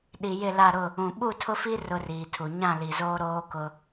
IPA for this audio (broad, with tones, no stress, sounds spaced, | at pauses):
ɗ i˨ j ɪ˦˨ l a˦˨ ɾ ʊ˦˨ | ũ˨ ɓ u˦˨ tʰ ʊ˦ f i˦ r ʊ˦ r iː˨ tʰ u˨ ɲ ã˦˨ l i˨ z oː˦ ɾ oː˦ k ʊ˦